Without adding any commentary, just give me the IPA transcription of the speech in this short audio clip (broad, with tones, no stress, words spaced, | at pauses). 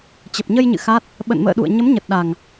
t͡ɕə˨˩p̚ɲə˧jɲɨ̰˧˨ xa˦˥t̚ | ɓə̰˧˨nmə̰ː˧˨ɗṵ˧˨ə̯ ɲə˨˦mɲə˨˩t̚ɗa˨˩ŋ